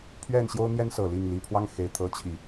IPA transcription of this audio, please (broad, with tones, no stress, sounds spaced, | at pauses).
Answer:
pʰ ɥ ɛ˥˩ n ɕ j o˥ ʊ̯ n̪ j ɛ˥ n s ɤ˨˩ l i˥˩ ŋ l i˨˩ pʰ w ɑ˥˩ ŋ x e˨˩ ɪ̯ t̪ʰ ɤ˧˥ t͡ɕʰ i˨˩˦